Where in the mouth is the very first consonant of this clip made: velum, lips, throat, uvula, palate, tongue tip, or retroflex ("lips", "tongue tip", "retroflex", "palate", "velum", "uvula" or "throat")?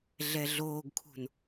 tongue tip